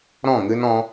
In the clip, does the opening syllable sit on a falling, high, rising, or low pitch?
falling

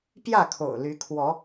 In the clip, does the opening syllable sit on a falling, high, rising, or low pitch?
falling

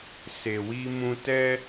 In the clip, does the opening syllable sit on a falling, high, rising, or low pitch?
low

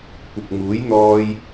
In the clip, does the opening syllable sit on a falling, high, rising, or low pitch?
low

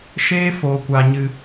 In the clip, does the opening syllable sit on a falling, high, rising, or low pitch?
high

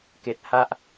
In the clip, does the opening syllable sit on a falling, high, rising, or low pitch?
low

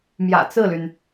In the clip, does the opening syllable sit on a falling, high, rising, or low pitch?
low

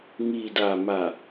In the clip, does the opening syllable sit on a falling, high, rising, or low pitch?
low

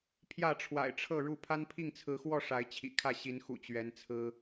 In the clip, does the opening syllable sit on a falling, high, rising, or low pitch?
falling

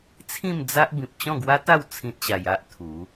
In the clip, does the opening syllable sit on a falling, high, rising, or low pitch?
falling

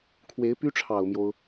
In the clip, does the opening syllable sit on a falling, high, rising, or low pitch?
rising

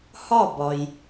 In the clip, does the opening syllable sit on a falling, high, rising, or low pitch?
falling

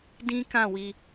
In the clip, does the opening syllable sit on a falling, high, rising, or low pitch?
high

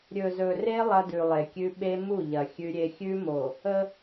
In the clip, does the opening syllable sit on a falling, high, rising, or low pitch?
low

